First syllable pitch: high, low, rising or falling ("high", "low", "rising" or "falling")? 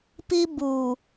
high